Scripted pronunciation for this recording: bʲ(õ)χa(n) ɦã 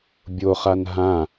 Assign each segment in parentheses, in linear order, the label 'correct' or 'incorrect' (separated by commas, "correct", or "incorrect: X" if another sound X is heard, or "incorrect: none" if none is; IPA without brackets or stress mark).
incorrect: o, correct